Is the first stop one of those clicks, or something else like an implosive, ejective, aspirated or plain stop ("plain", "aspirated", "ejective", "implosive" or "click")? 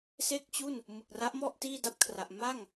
plain